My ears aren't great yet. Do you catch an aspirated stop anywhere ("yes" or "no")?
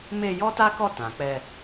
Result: no